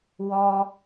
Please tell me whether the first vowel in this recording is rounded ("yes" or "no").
yes